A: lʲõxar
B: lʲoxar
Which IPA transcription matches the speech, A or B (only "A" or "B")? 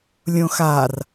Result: A